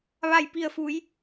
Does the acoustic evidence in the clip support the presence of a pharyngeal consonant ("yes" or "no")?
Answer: no